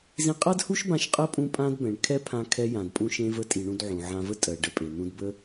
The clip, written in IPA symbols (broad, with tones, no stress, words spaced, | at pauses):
zĩ˧qʼa˥dhu˥ʃbã˧ʃ qʼə˥ pʼũ˧pʼã˧dbɛ̃˩ɳ kʰɛ˥pʰã˧ kʰɛ˧jã˩dpʼũ˧ ʃẽ˧və˧tʼi˩ ɳũ˧dʕũ˩ʕã˧və˥ tʼɜ˩ ɖə˧pʼe˩ n̪ũ˧dbə˥